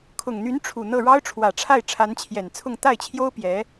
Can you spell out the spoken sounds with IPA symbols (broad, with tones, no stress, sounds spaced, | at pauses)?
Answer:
kʰ ʊ˨˩ ŋ n̪ y˧˥ n ʈ͡ʂʰ u˨˩ n̪ ɤ˥˩ ɻ ɑ˥ ʊ̯ ʈ͡ʂʰ w ä˨˩ ʈ͡ʂʰ a˥˩ ɪ̯ ʈ͡ʂʰ a˧˥ n t͡ɕʰ j ɛ˨˩ n t͡sʰ ʊ˥˧ ŋ t̪ a˥˩ ɪ̯ t͡ɕʰ j o˥ ʊ̯ p j ɛ˧˥